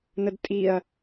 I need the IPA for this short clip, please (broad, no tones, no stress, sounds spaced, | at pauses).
n ə d tʼ i ɐ̯